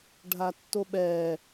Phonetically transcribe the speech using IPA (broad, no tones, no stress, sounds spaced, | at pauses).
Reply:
ɖʱ a tː o ɓ ɛ